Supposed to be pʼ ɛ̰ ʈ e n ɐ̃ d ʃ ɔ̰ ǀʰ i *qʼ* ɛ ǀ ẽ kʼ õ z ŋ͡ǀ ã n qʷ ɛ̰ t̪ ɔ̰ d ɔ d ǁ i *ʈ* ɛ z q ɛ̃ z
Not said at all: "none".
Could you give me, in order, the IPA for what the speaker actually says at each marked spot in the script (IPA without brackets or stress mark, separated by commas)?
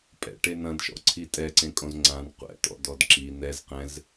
tʼ, n̪